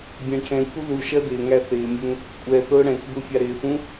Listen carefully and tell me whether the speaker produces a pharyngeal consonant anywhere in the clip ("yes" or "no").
no